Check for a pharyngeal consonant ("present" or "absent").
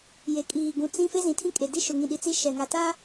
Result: absent